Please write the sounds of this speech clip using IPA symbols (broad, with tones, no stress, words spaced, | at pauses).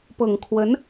pɤ˨˩ŋ kʰwə˧˥n